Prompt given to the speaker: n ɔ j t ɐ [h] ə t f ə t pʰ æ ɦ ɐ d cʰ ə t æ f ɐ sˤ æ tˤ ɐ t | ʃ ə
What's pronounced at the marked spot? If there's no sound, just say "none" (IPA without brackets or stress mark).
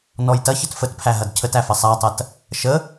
ç